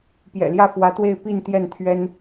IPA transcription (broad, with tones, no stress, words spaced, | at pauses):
pjɛ̰˨˩ljä˥˩fwä˧˥t̪we˥˧ɪ̯ pi˥˧n t̪jɛ˥˩nt̪ʰɥɛ˥n